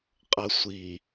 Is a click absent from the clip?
yes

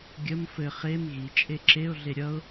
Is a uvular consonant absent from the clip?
no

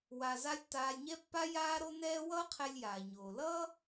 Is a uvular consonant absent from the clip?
no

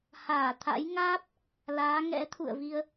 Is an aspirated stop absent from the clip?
no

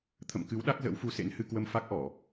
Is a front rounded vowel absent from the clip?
yes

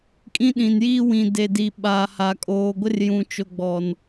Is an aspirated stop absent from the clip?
yes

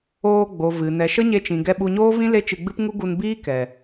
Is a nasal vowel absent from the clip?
no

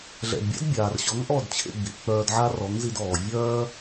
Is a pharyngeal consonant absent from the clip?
no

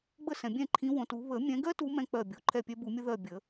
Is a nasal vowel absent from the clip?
no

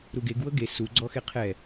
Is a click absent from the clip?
no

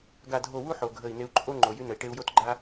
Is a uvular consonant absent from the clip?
yes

